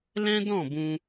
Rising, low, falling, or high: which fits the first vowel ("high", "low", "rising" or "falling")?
high